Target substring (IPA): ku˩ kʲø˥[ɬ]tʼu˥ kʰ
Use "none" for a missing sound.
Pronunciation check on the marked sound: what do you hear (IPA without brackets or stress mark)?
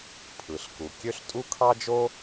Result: ɬ